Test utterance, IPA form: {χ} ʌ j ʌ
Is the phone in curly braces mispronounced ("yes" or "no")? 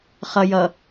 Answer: no